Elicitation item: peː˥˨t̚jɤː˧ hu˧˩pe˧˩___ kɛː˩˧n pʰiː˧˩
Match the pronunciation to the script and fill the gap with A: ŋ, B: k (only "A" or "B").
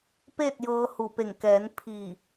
A